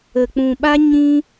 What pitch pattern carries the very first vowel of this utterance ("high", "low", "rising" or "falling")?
low